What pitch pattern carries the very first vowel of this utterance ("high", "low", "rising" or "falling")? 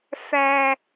high